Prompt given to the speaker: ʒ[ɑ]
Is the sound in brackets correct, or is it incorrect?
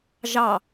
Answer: correct